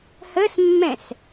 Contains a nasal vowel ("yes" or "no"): yes